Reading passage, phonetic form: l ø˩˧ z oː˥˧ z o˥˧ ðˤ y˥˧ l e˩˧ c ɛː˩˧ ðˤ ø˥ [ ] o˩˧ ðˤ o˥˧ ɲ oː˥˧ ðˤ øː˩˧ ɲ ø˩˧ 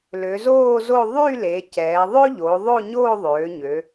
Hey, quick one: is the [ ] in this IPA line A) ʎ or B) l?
A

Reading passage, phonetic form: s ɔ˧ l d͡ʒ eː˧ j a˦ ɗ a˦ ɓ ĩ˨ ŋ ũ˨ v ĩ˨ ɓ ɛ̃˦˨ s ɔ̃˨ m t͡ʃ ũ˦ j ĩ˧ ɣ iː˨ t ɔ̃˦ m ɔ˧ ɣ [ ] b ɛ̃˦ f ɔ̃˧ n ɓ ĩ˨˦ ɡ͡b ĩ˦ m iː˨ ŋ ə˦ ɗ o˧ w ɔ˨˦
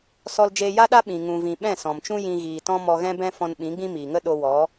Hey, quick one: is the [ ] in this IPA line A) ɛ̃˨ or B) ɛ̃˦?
B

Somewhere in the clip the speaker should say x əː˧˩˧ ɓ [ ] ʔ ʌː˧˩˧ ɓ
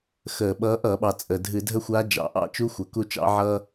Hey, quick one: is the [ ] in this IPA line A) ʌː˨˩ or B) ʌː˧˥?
B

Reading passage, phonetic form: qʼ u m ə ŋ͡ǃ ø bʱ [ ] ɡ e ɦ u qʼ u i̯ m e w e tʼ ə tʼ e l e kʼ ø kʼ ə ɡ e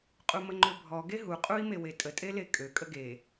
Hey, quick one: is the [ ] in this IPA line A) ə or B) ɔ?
B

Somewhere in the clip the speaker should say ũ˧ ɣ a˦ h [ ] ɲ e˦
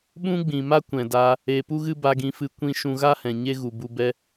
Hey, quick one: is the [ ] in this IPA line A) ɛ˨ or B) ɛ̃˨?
B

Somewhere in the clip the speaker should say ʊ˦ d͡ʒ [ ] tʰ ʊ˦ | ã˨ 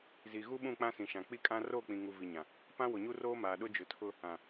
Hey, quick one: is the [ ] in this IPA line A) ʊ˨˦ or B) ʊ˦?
A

